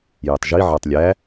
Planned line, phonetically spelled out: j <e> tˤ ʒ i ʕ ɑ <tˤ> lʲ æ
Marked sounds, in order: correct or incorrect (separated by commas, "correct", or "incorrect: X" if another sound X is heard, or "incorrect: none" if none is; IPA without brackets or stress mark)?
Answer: incorrect: ɛ, correct